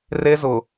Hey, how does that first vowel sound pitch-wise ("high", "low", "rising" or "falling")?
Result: high